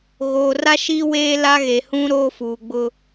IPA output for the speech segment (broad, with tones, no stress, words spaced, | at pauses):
ɣoː˨ra˦ʃi˦ weː˦la˦ɣe˨hũ˦ ɾoː˦fuː˨ɡ͡bʊ˦